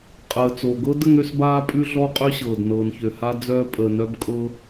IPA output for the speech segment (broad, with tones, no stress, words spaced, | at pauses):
qʼəː˩t͡so˩ɡɤ˥d ə˥ŋø˥sbaː˥ pʼʉ˥ɮɔ˥qʼø˥ɕɤː˩d nɤː˩nçø˩ha˥ d͡zœː˥ pʼəː˩nœ˥bkʼɤ˥